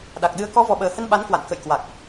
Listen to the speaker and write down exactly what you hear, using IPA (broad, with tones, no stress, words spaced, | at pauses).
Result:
ɗa˨˩k̚ɗɨ˨˦ə̯ kɔ˨˦vɔ˨˩ɓəː˨˩hə˧n ɓa˨˦nkwa̰˧˨nkə̰˧˨jkwa˨˩k̚